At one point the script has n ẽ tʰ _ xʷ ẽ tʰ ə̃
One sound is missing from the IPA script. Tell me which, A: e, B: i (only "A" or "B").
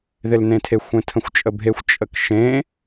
A